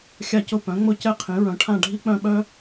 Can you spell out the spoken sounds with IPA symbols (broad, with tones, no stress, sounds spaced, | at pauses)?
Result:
xʲ a˥˧ c ʊ˥˧ p œ̃˨˥ ŋ͡m ʊ˥˧ c ɛ˥˧ qʰ ĩ˨˥ ɹ œ̃˨˥ ʈʰ ã˥˧ ɖʱ i˥ k͡p œ̃˥˧ ɓ œ˥